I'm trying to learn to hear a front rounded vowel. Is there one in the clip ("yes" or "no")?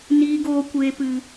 no